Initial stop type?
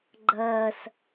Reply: click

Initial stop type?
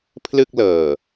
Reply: aspirated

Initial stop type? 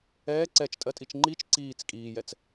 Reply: click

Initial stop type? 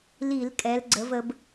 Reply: ejective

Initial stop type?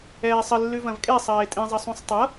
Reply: ejective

